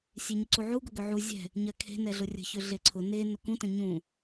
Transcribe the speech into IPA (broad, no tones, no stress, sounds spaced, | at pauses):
sʲ e ɲ ʏ ǀ u ʕ u ɡ ʊ ɡ ʏ ʕ u zʲ ɛ̤ | ɲ ɜ kʰ e̤ n ɛ ɮ ʊ rʲ ə̤ ç ʏ ɮ e ǀʰ ʊ n e n ʊ k ũ t ə̃ ɲ ũ